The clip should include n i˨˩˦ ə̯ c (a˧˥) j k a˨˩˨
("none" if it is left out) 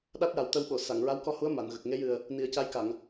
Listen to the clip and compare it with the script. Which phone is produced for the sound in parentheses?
a˧˥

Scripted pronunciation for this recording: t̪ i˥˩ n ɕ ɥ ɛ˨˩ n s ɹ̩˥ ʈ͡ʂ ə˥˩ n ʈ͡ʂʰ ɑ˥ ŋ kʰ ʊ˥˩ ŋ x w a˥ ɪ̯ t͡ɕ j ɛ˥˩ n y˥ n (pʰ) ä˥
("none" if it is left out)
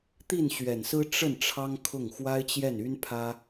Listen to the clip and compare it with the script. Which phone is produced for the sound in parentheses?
pʰ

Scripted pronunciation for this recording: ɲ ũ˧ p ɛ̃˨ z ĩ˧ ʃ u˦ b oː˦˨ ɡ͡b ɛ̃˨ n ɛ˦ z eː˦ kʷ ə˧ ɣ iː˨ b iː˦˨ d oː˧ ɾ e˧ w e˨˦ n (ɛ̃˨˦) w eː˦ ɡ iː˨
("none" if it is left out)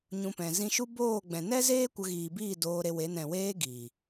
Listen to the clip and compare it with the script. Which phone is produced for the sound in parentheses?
ɛ̃˨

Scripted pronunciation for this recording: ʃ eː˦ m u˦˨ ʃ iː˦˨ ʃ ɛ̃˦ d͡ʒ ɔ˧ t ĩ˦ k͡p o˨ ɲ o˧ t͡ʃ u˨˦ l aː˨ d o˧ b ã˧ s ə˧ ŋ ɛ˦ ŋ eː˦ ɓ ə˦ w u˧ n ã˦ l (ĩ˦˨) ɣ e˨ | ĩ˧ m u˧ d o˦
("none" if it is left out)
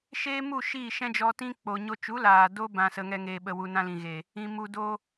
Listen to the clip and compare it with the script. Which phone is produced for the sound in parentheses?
ĩ˨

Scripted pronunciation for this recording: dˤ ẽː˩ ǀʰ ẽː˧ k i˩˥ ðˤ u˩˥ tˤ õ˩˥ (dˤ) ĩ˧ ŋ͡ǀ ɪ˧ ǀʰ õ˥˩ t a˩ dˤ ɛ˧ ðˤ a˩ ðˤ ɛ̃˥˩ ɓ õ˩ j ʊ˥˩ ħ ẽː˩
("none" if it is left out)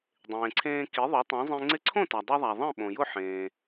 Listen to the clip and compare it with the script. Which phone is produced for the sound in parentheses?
zˤ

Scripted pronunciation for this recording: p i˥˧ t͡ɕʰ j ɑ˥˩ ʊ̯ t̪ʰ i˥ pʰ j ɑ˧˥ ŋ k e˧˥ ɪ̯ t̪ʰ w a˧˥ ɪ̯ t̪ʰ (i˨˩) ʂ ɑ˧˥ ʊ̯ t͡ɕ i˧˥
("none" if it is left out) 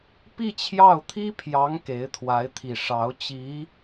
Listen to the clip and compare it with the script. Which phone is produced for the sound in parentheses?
i˨˩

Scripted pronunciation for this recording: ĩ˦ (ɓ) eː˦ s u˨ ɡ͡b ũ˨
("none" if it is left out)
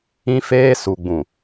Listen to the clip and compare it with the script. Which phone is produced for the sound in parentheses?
f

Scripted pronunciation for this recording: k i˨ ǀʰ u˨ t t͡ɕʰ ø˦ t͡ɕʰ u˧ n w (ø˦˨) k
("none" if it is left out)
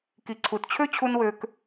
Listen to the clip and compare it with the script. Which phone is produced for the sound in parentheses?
ø˧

